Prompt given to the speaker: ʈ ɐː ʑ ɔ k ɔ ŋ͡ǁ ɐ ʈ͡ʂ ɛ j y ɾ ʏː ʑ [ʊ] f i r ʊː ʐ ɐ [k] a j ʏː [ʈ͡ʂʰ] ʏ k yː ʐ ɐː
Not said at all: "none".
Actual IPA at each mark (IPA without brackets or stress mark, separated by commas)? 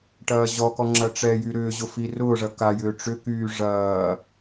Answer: ʊ, k, ʈ͡ʂ